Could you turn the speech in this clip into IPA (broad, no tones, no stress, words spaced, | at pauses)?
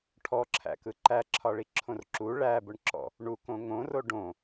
ʈʰɔǁʰæ̰kɯ ǃæǁʰɒɭiǁʰõr ǁu ɭæbʊɳǁɔ̰ | ɳukõ ŋõro ɖõ